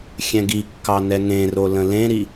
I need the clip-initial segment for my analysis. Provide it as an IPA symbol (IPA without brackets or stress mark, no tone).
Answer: xʲ